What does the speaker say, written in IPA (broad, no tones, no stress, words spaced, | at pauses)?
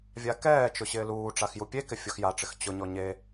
vʲakɛːt͡ʃʊ ɕɪːluːʈ͡ʂax jupʲekɪ fʲoxjaʈ͡ʂɪx t͡ɕʊɲɔ ɲe